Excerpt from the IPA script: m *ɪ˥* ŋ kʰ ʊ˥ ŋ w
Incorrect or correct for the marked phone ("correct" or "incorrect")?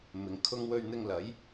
incorrect